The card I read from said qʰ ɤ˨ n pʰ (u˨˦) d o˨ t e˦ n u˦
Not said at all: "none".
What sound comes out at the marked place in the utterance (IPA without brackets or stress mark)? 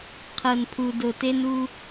u˨